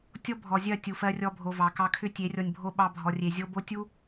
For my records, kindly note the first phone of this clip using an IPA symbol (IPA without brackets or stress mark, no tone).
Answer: tʲ